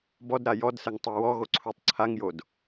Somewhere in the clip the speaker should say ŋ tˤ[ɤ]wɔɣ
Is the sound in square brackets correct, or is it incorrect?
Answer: correct